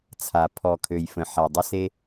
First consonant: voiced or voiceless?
voiceless